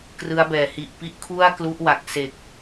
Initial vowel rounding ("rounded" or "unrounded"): unrounded